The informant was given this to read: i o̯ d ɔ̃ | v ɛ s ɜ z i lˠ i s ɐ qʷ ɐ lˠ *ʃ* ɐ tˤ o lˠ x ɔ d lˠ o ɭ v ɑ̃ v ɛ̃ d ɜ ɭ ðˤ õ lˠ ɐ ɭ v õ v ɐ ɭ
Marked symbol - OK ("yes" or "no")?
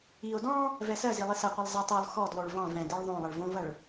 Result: no